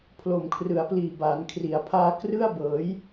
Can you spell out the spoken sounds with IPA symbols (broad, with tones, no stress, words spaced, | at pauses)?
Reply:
pʰlo˨˩mkʰrɯ˩˦a̯pliː˨˩ baː˩˦nkʰri˩˦a̯pʰaː˧ krɯ˥˩a̯ bɤː˩˦j